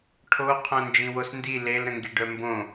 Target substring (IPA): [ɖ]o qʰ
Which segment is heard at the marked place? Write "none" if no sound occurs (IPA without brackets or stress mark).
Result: ʈʰ